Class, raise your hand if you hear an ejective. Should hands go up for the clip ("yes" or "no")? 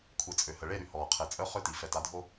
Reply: yes